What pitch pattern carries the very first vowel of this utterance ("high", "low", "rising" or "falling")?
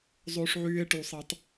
high